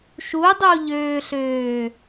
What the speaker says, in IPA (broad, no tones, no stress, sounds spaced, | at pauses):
ʃ u dˤ u ʎ øː ɬ øː